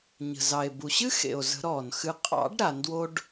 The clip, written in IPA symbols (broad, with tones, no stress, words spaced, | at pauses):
ɲə̤˨˩zɑ˨˩e̯ bu˨˩ɕɨ˥xḛ˨˩o̯zə̤˨˩˦ ɾɔː˨˩nxɨ˧ qʼɑ̰˨˩˦ɖ ɾa˨˩˦ndwo˥ɖ